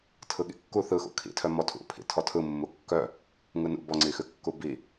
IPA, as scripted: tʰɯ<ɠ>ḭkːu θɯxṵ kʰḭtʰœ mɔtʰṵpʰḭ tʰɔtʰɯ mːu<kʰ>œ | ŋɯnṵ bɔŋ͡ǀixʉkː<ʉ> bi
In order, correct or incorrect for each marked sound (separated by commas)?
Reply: correct, incorrect, incorrect